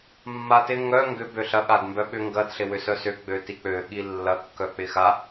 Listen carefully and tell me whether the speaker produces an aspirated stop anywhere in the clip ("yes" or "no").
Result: no